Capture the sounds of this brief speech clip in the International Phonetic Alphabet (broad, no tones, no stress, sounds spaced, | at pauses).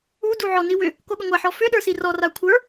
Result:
u d u ʕ ɔ n i w ʏ | k o ɠ ʏ ŋʷ a ħ ɔ f ʏ ɗ ə˞ s i r ɔ r a kʷʰ ə˞